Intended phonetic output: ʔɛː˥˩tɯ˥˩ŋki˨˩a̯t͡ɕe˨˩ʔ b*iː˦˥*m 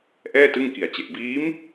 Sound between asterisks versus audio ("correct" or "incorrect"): correct